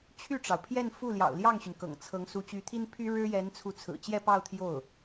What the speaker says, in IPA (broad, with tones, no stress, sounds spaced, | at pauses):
t͡ɕʰ y˥˩ ʈ͡ʂ ɑ˩ ʊ̯ pʰ j ɛ˥˧ n f u˥˩ l j ɑ̰˨˩ ʊ̯ l j ɑ˥˩ ŋ ɕ y˩ n k ɤ̰˨˩ ŋ t͡sʰ ɤ˧˥ ŋ s u˧˥ t͡ɕ y˧˥ t̪ʰ i˥ n pʰ y˥ ɻ ɻ̩˥ j ɛ˧˥ n t͡sʰ u˧˥ t͡sʰ ɹ̩˨˩ t͡ɕ j ɛ˥˧ p ɑ˥˧ ʊ̯ t̪ʰ j o˥˩ ʊ̯